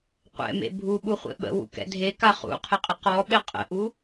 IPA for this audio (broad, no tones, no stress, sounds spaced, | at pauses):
qʷ ɛ̰ m ḛ bʱ u ɓ u χʷ ḛ ɓ ə̰ w ṵ k ɛ̰ dʱ e k a χ ṵ qʰ ɪ qʼ ɪ q ɔ ɓ ɪ qʼ ə̰ ʔ u